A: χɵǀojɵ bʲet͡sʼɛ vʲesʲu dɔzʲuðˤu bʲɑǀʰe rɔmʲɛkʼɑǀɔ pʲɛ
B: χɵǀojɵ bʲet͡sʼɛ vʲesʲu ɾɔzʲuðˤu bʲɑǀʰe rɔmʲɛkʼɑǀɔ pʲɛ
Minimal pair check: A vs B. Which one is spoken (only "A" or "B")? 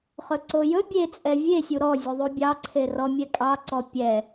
B